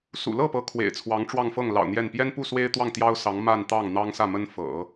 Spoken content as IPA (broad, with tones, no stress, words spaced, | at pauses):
sṵ˨˩lɤ˥˩ pɤ˧˥ kʰwḛ˨˩ɪ̯t͡sʰwɑ˧˥ŋ ʈ͡ʂwɑ˥˧ŋfɤ˥˩ŋlɑ̰˨˩ʊ̯ n̪jɛ˥˩n pjɛ˥npu˥˩ swe˥ɪ̯t̪wɑ˥˩ŋ t̪jɑ˥ʊ̯sɑ˧˥ŋ ma˥˧nt̪ɑ˥˩ŋ n̪ɑ˥ŋsä˥˩mə˥n fɤ̰˨˩˦